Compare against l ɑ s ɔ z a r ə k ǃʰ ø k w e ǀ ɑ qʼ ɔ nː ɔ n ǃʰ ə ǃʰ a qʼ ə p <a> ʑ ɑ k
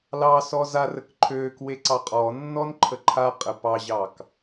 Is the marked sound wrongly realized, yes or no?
yes